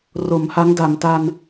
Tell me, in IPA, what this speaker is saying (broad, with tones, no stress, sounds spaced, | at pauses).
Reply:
r o˩˦ m h a˦˥ ŋ d a˩˦ m t a˧ n